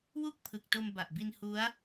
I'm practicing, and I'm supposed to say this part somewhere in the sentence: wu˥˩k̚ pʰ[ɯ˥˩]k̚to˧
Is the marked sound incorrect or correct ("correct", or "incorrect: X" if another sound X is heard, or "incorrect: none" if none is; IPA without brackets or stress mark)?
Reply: incorrect: ɯ˨˩